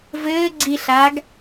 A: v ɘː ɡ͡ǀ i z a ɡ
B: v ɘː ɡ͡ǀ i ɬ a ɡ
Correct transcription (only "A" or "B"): B